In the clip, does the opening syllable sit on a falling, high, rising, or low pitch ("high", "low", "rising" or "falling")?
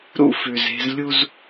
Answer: high